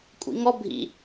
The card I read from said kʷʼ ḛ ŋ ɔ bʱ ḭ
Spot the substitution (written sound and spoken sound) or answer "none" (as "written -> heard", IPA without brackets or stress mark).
ḛ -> ḭ